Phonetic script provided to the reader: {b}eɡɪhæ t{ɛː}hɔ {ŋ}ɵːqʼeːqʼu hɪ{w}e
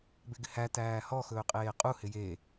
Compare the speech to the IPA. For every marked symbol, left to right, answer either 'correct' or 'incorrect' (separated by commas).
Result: correct, incorrect, incorrect, incorrect